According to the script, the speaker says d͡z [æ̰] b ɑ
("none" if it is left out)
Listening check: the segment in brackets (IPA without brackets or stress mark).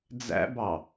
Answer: æ̰